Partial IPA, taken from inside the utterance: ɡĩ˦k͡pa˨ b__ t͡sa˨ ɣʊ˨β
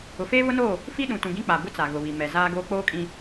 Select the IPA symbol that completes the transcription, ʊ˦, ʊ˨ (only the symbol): ʊ˦